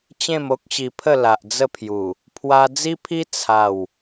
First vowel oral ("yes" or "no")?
no